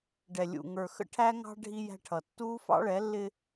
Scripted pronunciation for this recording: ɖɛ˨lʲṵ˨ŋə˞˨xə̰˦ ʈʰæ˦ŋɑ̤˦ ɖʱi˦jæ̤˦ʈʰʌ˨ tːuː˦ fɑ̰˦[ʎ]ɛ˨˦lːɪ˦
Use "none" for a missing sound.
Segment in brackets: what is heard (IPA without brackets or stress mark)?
ɭ